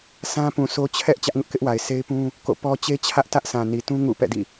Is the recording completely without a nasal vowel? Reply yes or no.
no